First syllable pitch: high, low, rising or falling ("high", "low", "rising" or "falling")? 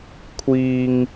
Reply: low